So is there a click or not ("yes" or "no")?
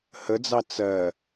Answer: no